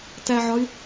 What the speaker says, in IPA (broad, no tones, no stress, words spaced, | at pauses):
tæʕɒy̯